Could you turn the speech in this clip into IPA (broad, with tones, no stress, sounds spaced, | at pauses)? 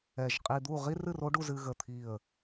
ɛ˧˩ ʒ qʼ i˧ d̪ u˥˧ ʁ i˥ r ɨ˥˧ r o˥ ɖ u˧ z ɨ˧ ɣ ə˧˩ t̪ʰ i˧˩ ə̯